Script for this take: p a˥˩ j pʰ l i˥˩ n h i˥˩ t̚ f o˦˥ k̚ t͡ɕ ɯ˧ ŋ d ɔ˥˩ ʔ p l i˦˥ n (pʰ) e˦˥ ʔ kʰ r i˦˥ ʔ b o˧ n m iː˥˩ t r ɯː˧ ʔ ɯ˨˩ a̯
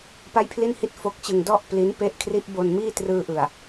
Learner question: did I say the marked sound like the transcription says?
no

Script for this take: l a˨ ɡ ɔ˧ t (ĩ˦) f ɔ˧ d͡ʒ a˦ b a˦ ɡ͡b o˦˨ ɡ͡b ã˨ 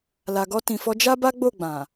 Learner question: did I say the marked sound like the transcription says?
no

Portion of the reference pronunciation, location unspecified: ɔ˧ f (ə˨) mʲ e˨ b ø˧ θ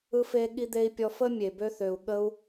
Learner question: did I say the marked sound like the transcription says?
no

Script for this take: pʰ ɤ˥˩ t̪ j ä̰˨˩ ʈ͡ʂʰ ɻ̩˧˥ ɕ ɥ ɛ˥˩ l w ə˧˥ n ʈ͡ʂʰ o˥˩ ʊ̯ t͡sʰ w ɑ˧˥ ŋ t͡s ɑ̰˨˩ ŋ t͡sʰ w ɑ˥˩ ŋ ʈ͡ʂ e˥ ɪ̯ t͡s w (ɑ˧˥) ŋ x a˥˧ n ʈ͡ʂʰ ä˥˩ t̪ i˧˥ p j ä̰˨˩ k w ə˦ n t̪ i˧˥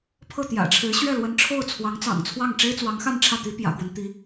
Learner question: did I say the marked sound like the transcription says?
yes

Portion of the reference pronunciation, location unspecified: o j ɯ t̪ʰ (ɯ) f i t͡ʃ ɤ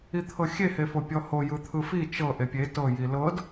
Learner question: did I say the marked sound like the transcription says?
yes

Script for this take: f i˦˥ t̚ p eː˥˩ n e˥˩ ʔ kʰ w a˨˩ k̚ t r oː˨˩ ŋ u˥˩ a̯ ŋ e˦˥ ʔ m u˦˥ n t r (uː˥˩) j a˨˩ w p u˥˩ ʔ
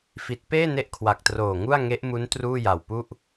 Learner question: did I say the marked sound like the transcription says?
yes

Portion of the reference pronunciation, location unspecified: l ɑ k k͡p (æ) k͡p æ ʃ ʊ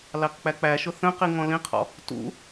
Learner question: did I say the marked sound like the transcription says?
yes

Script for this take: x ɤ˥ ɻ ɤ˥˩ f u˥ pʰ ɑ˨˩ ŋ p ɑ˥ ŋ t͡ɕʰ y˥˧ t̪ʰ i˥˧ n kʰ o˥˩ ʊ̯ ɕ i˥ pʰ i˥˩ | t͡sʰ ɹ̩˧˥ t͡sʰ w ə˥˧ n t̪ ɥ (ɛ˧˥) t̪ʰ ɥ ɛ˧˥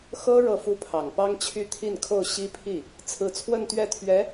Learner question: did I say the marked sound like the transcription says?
no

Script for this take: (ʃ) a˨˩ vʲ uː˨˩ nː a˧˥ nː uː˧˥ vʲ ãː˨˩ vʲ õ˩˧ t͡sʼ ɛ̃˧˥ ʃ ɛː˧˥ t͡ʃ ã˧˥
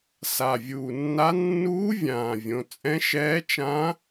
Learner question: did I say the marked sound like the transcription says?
no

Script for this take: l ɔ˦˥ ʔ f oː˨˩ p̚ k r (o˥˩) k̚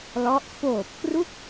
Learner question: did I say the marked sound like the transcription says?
no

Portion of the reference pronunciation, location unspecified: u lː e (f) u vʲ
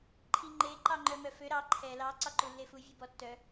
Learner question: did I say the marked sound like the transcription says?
yes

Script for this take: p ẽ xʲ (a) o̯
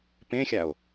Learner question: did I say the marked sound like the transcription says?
yes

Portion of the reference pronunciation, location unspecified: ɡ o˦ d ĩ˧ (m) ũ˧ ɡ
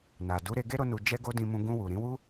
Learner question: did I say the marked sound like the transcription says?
yes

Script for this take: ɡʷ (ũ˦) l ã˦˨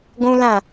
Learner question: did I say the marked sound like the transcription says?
yes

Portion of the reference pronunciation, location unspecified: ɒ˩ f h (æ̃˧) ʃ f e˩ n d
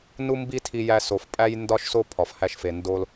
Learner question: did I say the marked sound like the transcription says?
no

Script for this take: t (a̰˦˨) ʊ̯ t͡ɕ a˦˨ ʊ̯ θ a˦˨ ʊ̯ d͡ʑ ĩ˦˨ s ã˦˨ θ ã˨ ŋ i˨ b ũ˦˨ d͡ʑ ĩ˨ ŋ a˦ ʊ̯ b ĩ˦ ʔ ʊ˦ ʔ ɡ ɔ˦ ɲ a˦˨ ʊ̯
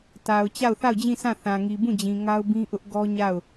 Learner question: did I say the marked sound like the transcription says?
no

